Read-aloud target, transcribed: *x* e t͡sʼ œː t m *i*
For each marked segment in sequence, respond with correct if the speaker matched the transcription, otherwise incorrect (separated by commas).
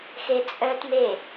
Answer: correct, incorrect